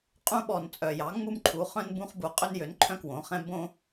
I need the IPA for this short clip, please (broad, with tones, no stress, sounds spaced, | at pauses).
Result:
qʼ ũ˦ ɓ ɔ˨˩ n t͡sʼ œ˨˩ j ɑ˩˥ ŋ͡m u˦ m ǃʰ u˩˧ χ œ̃˦ n b ũ˦ χ b u˨˩ qʼ ø˦ n j ø˩˥ n ǃʰ œ̃˦ k w õ˩˧ χ ɛ̃˦ b õ˦